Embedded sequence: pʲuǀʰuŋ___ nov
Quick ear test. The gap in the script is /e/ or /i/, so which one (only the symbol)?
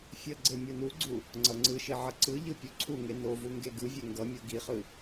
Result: e